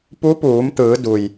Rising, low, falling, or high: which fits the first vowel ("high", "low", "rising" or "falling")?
rising